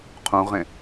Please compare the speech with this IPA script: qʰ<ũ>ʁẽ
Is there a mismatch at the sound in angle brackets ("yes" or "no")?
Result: no